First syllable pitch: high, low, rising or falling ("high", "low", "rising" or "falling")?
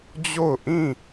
falling